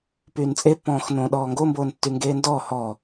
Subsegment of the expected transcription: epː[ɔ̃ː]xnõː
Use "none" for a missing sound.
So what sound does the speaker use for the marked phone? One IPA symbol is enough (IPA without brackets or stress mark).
ɔ̃ː